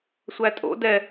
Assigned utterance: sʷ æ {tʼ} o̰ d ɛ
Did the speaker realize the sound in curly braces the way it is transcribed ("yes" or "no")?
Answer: yes